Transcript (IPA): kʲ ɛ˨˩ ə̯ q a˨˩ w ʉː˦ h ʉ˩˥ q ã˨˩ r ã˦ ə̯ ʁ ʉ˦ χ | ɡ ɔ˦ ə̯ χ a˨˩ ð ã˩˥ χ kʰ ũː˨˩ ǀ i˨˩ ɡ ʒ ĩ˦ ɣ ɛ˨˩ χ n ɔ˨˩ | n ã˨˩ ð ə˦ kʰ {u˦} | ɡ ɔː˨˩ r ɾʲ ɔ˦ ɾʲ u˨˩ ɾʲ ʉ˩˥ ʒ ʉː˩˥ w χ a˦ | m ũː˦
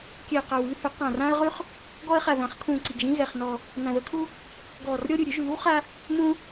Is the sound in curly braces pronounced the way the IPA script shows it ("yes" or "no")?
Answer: yes